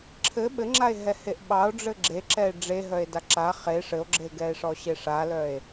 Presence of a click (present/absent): present